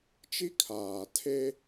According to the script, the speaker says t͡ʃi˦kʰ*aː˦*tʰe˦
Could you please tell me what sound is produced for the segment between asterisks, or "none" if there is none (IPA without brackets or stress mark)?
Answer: aː˨